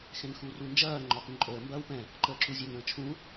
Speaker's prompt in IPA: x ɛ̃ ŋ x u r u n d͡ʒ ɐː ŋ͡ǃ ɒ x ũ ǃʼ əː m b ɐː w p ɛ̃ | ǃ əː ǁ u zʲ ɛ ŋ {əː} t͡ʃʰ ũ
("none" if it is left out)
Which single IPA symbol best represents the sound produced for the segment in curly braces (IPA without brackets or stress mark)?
ə̃ː